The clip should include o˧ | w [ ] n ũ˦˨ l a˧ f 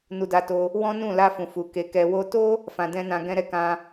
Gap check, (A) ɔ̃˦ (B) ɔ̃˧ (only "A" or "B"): A